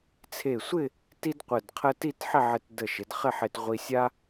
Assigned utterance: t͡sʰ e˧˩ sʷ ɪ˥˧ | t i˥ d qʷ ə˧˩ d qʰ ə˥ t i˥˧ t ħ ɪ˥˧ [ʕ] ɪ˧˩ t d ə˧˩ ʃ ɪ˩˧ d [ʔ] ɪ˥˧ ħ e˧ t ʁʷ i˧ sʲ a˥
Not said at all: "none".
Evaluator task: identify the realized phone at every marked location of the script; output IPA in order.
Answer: ʕ, χ

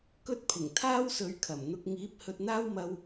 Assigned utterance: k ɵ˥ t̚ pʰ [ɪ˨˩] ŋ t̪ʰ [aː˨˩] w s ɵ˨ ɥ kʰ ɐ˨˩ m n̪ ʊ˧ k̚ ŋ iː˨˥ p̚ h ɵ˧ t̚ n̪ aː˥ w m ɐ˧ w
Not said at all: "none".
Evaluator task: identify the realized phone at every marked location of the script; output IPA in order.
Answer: ɪ˨˩, aː˥

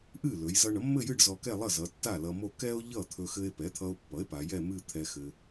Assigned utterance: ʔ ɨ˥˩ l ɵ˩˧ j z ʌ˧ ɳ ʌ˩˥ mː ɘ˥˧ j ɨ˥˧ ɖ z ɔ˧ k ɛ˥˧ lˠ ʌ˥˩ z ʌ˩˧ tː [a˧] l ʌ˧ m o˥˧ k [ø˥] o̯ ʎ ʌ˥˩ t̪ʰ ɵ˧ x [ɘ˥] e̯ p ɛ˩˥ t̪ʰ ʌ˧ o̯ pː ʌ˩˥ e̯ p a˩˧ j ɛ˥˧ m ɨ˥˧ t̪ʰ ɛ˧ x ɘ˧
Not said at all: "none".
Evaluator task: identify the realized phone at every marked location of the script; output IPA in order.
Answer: a˥˩, ɛ˥, ɘ˧

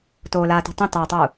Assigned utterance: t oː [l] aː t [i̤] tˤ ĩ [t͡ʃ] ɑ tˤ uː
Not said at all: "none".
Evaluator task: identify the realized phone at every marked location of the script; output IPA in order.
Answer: l, i̤, t

